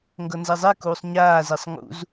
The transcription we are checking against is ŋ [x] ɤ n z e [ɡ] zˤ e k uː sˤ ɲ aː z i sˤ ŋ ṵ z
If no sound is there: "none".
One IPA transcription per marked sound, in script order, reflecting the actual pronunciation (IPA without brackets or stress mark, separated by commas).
ɡ, none